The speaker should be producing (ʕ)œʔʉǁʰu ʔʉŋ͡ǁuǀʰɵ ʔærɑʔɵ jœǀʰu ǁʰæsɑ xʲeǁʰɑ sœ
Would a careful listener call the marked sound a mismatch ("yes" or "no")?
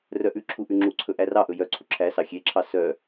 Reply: yes